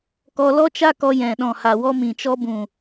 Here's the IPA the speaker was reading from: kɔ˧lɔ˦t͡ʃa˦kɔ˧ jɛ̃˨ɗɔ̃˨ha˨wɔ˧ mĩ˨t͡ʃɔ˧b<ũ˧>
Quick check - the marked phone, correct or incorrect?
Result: incorrect